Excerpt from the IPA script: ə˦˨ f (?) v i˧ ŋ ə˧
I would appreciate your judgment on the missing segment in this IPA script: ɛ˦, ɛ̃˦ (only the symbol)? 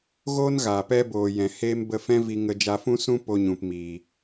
ɛ̃˦